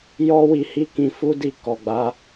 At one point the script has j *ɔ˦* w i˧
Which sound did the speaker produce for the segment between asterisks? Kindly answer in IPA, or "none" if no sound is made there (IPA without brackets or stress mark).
ɔ˦